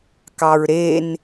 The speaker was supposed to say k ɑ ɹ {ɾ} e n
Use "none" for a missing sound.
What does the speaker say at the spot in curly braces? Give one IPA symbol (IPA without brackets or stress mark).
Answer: ɾ